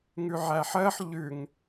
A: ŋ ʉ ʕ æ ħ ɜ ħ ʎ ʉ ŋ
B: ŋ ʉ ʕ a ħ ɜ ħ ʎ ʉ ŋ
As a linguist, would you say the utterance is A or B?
A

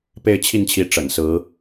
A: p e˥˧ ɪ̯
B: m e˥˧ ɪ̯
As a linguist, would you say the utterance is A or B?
A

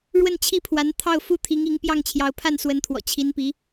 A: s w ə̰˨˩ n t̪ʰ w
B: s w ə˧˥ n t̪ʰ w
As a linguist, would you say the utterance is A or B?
B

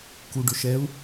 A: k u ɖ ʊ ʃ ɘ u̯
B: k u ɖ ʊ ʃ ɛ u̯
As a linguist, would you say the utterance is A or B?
B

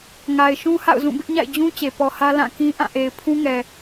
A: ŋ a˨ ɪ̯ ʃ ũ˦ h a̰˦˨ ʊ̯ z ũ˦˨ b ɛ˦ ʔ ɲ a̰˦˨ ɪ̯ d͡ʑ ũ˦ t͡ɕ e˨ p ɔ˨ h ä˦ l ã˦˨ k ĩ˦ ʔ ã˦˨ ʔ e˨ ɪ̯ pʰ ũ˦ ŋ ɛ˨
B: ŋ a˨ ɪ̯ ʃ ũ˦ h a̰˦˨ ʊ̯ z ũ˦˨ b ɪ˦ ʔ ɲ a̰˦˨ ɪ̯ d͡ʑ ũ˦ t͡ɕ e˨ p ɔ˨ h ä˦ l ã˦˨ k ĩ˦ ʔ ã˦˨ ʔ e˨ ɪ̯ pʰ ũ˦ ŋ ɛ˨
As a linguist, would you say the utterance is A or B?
B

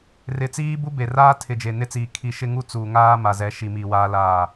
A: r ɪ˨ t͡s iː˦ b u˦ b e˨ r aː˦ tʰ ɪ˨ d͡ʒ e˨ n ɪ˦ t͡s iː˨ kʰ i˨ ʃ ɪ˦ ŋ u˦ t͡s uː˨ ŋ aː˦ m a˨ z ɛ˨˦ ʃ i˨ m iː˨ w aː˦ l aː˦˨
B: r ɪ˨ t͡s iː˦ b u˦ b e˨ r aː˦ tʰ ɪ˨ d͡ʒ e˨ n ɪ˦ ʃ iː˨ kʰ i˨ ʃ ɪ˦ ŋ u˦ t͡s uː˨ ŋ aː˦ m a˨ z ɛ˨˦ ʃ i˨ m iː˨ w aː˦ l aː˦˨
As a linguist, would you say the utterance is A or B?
A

